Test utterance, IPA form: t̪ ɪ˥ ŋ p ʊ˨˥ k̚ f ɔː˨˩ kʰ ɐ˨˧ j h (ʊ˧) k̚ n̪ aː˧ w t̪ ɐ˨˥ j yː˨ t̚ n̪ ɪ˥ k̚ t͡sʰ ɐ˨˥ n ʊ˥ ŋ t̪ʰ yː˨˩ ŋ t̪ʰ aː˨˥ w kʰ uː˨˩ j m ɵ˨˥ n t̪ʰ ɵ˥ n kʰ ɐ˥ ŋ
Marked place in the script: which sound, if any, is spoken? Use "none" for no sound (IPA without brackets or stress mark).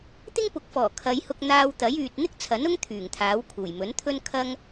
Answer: ʊ˧